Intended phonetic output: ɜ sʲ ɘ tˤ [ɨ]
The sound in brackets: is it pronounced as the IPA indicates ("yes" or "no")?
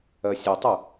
yes